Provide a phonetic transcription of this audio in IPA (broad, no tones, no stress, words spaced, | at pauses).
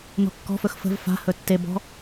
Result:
nɔ̤kːɔ̤fɵx fə̤v fa̤ hɵtːebɔ̤